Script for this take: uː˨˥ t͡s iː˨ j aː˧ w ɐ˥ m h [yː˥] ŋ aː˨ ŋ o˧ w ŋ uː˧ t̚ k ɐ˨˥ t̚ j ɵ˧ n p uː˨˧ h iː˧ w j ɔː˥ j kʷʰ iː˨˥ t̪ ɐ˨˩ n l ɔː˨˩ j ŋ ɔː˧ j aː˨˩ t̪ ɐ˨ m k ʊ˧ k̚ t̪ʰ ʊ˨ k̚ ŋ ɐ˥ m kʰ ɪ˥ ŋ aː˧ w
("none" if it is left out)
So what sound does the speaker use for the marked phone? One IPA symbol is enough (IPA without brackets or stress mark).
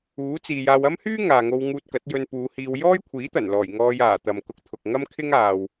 yː˥